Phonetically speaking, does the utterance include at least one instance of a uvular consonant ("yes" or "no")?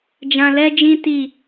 no